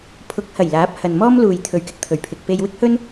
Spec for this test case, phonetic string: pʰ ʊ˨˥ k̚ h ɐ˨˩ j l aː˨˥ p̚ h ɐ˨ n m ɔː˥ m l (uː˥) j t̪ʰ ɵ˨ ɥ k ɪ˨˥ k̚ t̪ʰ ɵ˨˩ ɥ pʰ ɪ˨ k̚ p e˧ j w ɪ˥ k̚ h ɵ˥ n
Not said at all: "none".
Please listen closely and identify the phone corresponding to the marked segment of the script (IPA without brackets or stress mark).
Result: uː˨